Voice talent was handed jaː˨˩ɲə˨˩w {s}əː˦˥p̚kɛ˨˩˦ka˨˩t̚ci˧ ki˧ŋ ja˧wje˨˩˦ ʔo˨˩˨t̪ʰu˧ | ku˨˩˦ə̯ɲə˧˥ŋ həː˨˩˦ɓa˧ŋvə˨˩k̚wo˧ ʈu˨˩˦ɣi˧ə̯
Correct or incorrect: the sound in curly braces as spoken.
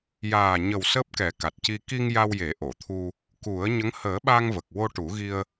correct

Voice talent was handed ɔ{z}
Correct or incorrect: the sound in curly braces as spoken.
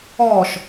incorrect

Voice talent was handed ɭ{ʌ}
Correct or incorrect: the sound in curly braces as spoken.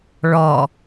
incorrect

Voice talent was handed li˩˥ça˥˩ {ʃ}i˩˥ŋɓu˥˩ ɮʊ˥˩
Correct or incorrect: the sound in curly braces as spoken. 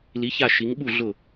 correct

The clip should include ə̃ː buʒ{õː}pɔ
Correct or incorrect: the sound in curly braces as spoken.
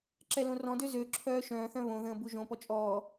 incorrect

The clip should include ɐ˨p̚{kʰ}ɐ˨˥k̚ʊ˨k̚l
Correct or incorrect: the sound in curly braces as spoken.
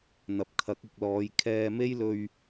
correct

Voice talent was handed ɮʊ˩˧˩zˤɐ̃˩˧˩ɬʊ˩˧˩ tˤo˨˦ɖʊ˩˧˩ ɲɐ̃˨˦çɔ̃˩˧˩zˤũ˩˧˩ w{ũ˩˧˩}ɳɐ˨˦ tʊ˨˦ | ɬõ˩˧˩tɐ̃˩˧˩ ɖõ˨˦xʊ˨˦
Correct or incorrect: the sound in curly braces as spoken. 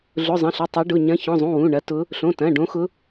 correct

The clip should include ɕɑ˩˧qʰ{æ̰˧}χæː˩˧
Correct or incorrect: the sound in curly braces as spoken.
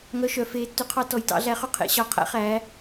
correct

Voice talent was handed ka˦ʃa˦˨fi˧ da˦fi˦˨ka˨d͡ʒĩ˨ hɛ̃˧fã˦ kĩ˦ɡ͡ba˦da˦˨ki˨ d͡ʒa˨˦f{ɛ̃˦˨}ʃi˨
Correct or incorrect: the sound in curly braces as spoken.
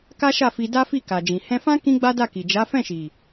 correct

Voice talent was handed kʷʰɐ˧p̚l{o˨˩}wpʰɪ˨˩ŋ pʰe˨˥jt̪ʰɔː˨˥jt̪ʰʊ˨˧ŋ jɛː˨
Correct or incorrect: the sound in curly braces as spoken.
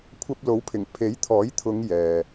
incorrect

